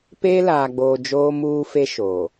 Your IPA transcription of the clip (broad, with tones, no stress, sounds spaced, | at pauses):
p eː˦ l aː˨ ɡ͡b oː˨ d͡ʒ oː˦ m uː˦ f e˦ ʃ oː˨